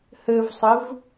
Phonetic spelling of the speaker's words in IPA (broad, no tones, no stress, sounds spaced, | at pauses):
h ɘ v sˤ ɘ v